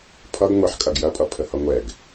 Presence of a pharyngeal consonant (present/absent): present